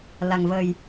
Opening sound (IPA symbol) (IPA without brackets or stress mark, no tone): l